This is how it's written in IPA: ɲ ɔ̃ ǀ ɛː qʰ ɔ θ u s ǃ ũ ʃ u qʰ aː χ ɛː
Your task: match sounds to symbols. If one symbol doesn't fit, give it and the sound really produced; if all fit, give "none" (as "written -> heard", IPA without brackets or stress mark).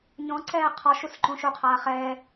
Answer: θ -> ʃ